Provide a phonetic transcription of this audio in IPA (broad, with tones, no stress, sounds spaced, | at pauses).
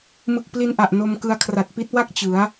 m ɯ˨˩ k̚ p l i˧ n ʔ a˨˩ ʔ n o˧ m k ɯ˧ a̯ kʰ r a˨˩ t̚ p i˦˥ t̚ w a˥˩ k̚ t͡ɕ ɯ˩˦ a̯